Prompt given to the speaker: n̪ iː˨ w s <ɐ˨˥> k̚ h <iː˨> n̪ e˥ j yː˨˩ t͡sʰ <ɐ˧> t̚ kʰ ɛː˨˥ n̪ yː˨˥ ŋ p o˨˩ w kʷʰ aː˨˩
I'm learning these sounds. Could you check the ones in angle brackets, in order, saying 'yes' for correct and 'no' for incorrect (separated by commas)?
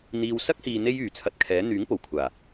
no, yes, yes